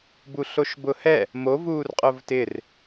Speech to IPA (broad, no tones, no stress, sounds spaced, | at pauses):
b u ɬ o ʃ b ʊ h ɛ | m o v uː r qʼ ʊ v t ɪ r